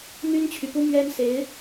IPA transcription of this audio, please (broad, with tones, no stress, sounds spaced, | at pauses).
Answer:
n̪ y˥ n t͡ɕʰ y˨ p u˥ m ɥ ɛ˥ n s e˧˥ ɪ̯